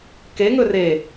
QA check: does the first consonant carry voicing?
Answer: no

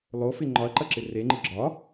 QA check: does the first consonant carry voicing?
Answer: yes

